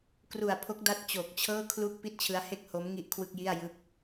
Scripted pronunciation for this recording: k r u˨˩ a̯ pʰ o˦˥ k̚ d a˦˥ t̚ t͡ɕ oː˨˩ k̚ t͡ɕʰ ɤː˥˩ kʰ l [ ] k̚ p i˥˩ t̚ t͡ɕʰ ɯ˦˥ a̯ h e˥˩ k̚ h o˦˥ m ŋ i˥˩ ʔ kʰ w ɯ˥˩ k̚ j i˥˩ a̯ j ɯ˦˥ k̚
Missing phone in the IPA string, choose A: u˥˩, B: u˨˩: A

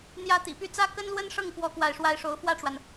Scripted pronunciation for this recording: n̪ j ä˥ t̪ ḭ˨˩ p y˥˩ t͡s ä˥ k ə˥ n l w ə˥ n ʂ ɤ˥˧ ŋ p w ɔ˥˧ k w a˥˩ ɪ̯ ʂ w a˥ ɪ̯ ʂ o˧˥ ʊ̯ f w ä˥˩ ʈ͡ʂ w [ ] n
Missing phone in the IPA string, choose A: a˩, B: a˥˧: A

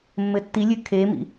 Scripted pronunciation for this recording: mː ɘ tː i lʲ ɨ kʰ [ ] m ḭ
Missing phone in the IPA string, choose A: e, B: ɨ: A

